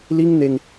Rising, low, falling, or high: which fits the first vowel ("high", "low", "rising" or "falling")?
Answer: high